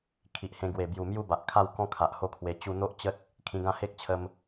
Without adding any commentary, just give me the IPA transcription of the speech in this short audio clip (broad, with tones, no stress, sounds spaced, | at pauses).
kʰ i˨ ʔ h ẽ˧ ɡ w e˨˩ b j u˨˩ m j u˥˧ b a˨ ʔ kʰ a˥˧ w k ɔ̃˦ kʰ a˨ ʔ h o˥˧ kʰ w e˧ t͡ɕ u˧ n̪ o˦ ʔ t͡ɕ ə˦ t̚ | kʰ ĩ˧ ɡ ã˥˧ h e˦ k̚ t͡ɕʰ ə˧ m